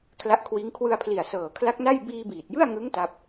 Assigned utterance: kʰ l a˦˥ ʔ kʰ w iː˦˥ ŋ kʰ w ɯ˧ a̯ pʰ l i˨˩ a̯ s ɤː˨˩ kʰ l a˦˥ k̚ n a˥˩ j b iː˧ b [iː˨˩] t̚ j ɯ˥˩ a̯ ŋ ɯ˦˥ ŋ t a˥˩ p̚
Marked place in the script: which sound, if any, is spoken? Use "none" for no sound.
iː˨˩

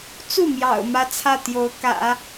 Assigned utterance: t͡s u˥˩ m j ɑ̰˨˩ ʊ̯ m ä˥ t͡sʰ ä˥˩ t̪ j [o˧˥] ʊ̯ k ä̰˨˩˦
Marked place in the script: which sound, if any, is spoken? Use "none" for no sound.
o˧˥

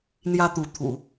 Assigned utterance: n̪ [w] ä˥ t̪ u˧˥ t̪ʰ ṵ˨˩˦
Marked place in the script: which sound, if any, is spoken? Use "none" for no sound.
j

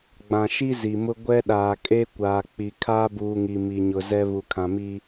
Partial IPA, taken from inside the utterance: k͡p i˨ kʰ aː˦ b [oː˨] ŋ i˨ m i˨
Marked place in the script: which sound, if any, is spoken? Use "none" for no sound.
uː˨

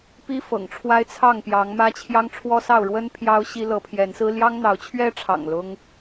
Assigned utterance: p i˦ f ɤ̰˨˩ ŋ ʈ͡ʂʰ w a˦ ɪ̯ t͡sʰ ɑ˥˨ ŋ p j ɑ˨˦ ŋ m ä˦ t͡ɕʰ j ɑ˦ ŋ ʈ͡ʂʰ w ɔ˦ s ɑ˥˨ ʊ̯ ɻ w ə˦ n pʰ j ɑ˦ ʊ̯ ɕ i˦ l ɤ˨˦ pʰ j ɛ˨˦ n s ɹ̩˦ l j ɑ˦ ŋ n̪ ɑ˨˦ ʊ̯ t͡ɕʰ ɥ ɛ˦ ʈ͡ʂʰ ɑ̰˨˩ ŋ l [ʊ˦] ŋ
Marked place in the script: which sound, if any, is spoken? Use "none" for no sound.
ʊ˦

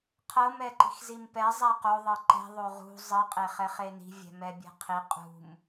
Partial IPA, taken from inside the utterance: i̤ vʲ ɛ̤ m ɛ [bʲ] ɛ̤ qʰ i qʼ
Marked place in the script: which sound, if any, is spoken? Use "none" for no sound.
bʲ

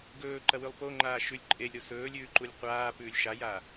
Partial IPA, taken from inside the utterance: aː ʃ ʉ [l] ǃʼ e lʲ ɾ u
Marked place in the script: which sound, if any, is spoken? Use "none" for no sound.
lʲ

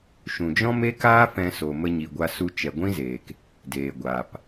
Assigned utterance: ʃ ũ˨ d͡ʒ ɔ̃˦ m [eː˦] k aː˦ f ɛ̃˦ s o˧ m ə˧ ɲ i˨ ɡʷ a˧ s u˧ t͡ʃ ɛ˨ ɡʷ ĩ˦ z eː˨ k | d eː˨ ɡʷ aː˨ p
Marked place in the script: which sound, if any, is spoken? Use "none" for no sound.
e˦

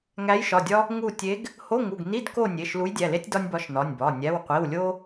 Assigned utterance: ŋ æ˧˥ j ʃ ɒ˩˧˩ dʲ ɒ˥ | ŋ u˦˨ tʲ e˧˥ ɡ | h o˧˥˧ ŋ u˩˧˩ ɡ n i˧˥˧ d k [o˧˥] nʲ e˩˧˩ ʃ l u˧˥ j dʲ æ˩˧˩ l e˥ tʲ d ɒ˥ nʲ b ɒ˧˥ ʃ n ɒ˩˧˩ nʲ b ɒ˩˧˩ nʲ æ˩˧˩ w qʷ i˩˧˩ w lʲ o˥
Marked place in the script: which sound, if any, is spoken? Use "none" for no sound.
o˦˨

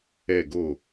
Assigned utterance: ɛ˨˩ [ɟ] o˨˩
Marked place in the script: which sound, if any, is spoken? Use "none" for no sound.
ɡ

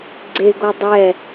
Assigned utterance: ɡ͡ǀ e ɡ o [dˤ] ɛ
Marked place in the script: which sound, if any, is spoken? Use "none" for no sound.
dˤ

